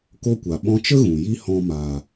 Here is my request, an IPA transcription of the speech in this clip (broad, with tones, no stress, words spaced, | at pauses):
ko˦kʷa˨ ɓɔ̃˧t͡ʃə˦ ɣũ˨ji˦hɔ̃˧ maː˨